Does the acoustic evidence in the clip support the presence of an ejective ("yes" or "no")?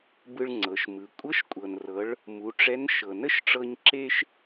yes